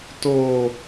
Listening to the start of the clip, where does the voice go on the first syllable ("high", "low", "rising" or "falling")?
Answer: low